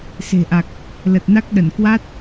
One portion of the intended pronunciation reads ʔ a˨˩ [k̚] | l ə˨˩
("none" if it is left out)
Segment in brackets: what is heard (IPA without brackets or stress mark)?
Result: k̚